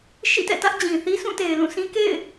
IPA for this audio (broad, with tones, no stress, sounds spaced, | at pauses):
ʃ ḭ˦˨ t ɛ̰˦˨ t ä˦ ʔ d͡ʑ ĩ˨ θ i˦ s ũ˦˨ t e˨ ɪ̯ l ũ˦˨ s ĩ˦ k ḛ˦˨ ɪ̯